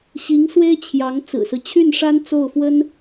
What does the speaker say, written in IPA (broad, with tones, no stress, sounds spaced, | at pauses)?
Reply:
ɕ i˧˥ ŋ s w e˥ ɪ̯ t͡ɕʰ j ɑ˧˥ ŋ t͡s ɹ̩˨˩ s ɹ̩˦ t͡ɕʰ y˥˩ n ʂ a˥ n t͡s o˥˩ ʊ̯ f w ə˥ n